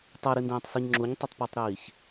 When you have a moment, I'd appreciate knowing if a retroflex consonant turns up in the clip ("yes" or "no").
no